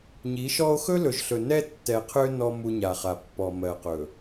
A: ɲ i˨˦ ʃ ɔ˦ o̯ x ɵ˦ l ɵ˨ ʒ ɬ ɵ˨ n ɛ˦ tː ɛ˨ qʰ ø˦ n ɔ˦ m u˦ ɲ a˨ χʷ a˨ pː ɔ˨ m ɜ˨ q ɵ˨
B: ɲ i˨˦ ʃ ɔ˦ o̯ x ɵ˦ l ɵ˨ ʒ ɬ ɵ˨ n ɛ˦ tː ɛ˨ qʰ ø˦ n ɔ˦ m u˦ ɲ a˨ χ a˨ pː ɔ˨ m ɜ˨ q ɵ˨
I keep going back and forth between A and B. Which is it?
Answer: B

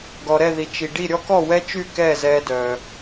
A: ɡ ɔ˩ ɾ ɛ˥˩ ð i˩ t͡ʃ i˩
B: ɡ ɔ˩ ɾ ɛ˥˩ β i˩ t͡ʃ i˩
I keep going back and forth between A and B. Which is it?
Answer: A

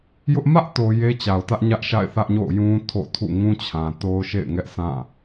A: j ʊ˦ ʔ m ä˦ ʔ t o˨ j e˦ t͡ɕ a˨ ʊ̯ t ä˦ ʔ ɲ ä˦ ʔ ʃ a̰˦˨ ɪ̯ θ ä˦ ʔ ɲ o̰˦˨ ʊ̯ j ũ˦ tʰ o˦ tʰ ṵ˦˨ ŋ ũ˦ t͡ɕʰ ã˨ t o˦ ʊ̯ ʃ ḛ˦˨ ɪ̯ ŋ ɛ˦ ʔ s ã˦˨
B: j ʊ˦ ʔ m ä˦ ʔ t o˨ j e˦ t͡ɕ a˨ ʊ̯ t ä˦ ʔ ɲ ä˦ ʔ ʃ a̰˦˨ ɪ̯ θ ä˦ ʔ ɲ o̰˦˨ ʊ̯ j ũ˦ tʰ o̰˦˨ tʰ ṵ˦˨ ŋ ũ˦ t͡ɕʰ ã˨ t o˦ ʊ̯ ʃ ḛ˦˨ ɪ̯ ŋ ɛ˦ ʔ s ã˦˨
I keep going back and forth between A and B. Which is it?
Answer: B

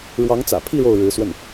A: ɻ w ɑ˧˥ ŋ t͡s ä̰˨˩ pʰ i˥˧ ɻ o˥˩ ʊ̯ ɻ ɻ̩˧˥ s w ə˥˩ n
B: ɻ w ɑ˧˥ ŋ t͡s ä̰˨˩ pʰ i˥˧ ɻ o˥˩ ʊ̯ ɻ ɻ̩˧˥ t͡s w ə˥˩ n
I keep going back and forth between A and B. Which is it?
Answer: A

